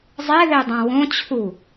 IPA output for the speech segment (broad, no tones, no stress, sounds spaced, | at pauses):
zˤ e ð e dˤ ã w õ t͡ɕʰ u